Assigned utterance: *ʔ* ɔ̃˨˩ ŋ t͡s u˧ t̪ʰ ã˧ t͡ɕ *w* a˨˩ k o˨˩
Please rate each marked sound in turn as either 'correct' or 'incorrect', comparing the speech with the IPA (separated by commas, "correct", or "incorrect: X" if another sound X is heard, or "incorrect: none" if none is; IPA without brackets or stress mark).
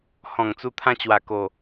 incorrect: h, correct